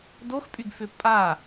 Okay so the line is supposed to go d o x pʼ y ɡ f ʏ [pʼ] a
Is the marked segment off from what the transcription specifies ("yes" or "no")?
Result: no